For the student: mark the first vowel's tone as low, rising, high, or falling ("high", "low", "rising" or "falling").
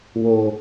low